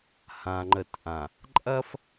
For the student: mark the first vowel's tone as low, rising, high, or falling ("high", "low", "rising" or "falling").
low